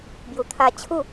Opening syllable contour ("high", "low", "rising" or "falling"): low